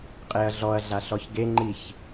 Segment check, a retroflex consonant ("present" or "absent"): absent